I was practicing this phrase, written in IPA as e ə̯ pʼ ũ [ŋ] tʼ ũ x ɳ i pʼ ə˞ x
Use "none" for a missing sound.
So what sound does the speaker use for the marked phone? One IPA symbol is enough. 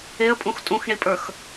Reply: x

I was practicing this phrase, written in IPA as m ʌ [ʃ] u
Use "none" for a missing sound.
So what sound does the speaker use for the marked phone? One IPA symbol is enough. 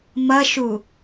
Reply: ʃ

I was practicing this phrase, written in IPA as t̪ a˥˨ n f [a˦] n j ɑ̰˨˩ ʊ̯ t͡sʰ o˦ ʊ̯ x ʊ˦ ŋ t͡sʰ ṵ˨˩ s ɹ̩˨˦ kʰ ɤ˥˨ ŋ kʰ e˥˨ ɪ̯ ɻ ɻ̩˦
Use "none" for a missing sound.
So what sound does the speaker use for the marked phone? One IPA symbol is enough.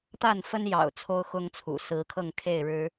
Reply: ə˦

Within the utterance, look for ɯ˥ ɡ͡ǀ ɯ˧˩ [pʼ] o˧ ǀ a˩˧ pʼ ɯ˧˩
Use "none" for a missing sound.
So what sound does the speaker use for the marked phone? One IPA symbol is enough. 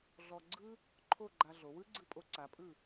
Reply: pʼ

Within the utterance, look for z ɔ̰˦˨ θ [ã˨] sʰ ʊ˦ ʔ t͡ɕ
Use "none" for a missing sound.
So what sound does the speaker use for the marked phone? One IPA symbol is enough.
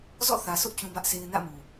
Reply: ä˨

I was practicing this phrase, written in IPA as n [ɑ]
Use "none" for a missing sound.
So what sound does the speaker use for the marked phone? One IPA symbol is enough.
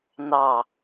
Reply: ɑ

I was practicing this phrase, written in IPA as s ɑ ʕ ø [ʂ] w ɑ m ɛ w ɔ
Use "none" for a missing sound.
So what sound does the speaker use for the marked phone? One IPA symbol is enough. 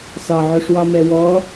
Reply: ʂ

